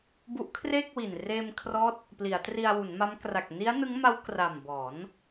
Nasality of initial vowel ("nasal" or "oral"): oral